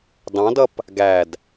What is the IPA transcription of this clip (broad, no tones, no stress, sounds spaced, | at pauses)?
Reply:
d ɑ̃ d ʌ p | ɡ æ d